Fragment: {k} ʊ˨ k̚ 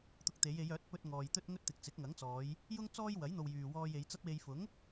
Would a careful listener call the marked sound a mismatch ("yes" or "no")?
yes